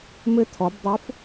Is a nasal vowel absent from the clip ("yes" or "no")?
yes